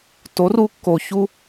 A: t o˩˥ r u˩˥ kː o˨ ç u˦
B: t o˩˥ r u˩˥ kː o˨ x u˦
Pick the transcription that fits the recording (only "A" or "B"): A